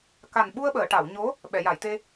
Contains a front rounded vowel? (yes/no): no